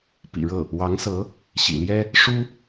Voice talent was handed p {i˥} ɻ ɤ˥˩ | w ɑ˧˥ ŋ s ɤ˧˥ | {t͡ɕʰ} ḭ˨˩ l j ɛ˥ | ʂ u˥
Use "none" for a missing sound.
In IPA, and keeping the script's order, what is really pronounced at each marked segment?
ḭ˨˩, ɕ

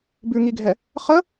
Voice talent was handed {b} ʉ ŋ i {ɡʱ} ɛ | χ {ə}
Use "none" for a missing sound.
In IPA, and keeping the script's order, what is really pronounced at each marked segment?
b, ɡʱ, ə

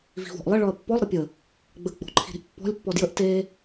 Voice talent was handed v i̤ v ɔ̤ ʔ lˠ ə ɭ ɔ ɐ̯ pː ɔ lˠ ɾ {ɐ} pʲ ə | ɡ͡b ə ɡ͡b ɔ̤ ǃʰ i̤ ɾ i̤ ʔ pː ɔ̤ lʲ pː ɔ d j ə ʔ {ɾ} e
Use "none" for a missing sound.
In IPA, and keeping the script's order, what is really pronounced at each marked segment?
ə, t

